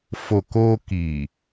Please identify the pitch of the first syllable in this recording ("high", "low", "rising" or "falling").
low